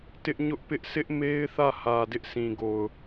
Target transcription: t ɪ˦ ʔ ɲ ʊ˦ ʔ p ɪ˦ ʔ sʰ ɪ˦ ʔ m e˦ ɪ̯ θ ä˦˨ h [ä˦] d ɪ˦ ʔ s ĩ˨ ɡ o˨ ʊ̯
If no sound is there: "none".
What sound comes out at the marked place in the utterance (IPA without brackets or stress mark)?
ä˨